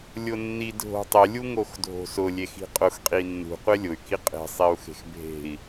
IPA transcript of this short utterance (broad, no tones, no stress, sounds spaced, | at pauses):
lʲ ʊ nː i dʱ o̤ tˤ ɪ lʲ u ŋ o x dʱ o̤ s ʊ lʲ e x i̤ qʼ ʊ x qʼ i nː ṳ qʷ e lʲ ʊ y̯ k i qʼ e̤ sˤ i u̯ x e̤ x bʱ e̤ i̯